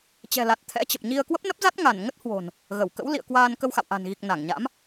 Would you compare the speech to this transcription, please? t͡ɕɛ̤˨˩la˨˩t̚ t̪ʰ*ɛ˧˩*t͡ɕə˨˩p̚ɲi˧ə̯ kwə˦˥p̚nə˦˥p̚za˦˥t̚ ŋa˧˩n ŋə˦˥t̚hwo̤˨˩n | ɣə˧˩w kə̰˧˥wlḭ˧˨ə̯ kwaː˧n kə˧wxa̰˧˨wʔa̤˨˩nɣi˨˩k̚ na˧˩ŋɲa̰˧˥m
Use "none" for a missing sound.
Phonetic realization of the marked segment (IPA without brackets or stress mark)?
ɛ̰˧˥